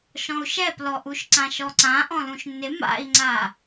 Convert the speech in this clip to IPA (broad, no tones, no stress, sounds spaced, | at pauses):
ʃ ɔ̃ u̯ ʃ ɛ p l ɔ ʔ u ʃ ǀ ã ʃ ɔ ǀ ã ʔ ɔ̃ l ũ ʃ nː ɪ m a̰ i̯ ŋ͡ǀ a